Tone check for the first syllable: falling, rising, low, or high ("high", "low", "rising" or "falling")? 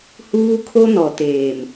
high